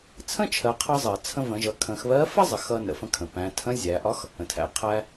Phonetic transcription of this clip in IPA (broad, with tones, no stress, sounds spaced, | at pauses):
t͡sʰ ə̃˥ t͡ʃʰ ɜ˩˧ qʰ ʌ˧ zˤ ɜ˩ t͡sʰ ə̃˧ v ə̃˩˧ ʒ ʌ˩˧ kʰ ə̃˩˧ x β ɜ˧˥ f ɜ˥ zˤ ə˩˧ x ʌ˧ n ə̰˩ f ə̃˧ kʰ ə̃˩ p æ̃˩˧ tʰ ə̃˧˥ zʲ æ˩˧ ʔ ɒ˧˥ x | ə̃˩ tʰ æ̰˩ ə̯ qʰ æ˧